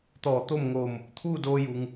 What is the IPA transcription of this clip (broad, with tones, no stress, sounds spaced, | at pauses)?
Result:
t̪ ɔː˧˩ t̪ o˥˨ m ŋ oː˧˩ m | t̪ʰ uː˥˨ d oː˧ j u˩ ŋ